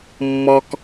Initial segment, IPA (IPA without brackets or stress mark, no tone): mː